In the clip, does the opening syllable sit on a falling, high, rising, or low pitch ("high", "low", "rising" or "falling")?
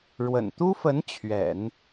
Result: low